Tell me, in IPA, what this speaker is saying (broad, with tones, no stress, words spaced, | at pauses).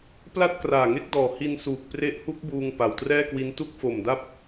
pla˥˩t̚ kraː˨˩ŋe˦˥k̚ dɔː˨˩ hi˧nsuː˨˩k̚ pre˦˥ʔhu˦˥k̚buː˧ŋ pa˨˩wtrɛː˥˩kwi˦˥n tu˦˥k̚fo˨˩mda˦˥p̚